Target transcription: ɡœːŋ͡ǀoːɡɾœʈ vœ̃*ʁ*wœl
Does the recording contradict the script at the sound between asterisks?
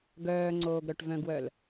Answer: yes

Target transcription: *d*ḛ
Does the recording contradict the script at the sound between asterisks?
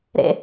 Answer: yes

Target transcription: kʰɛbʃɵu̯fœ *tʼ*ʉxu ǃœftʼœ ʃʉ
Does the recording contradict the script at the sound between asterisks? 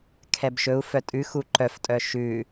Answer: no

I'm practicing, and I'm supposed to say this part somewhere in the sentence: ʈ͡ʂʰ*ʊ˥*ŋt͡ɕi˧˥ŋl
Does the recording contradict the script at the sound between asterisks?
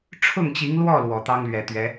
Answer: yes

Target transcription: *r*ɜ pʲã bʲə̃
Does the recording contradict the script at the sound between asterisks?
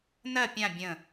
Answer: yes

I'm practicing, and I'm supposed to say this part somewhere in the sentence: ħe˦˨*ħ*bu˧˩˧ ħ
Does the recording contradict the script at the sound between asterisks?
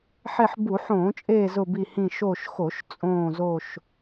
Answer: no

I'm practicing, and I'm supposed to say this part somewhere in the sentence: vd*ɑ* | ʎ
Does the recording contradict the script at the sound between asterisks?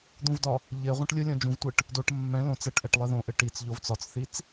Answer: yes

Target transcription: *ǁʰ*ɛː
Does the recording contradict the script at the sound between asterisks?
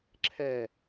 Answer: no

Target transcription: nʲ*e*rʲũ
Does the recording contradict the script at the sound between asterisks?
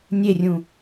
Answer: no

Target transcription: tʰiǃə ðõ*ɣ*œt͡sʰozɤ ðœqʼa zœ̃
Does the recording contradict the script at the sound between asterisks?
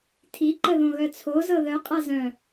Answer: no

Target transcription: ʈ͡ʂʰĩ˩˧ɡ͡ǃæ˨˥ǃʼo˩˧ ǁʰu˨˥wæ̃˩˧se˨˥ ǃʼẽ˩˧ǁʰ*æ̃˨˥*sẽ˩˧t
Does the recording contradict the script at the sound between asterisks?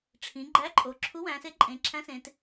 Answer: no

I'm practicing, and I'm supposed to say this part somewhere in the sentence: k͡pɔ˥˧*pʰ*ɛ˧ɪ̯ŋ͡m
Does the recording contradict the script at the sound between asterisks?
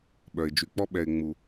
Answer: yes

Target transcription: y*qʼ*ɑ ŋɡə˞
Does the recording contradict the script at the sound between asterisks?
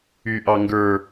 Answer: yes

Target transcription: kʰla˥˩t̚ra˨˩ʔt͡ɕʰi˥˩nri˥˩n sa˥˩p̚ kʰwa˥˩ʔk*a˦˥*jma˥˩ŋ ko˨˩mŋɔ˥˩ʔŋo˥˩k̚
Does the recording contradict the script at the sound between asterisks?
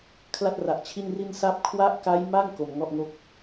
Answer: no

